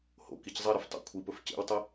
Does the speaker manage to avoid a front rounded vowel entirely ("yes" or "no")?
yes